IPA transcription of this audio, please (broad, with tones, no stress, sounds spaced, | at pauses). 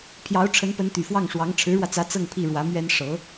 pʰ j ɑ˧˥ ʊ̯ ʈ͡ʂʰ ə˧˥ n p ə˧˥ n t̪ y˨˩ f w ɑ˥˩ ŋ ʂ w ɑ˧˥ ŋ ʈ͡ʂʰ ɻ̩˧˥ ɻ w ä˧ t͡s ä˧˥ t͡s ɤ˥˧ ŋ pʰ i˥˩ ɻ w ä˧˥ m ɥ ɛ˥ n ʂ ɤ˧˥